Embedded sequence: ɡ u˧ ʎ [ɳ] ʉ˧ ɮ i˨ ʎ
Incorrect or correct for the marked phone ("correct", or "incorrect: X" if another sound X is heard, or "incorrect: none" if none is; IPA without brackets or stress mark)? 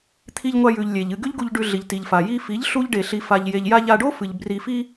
incorrect: ɖ